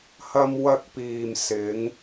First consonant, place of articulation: glottal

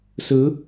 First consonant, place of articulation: alveolar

